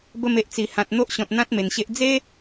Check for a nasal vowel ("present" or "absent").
present